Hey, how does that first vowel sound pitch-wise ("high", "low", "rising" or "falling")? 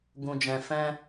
low